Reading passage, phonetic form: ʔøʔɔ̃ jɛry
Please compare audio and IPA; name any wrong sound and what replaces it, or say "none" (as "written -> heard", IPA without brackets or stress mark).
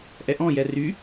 ø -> ɛ